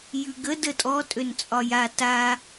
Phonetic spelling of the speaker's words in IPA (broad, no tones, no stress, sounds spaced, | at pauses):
j ʉ ɡ ə d ə tʼ ɔ tʼ ø n t͡sʼ ɒ j a t a